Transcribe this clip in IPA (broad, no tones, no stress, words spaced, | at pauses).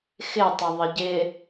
xɪtˤə ðˤəɟɪ